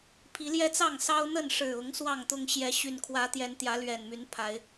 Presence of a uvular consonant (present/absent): absent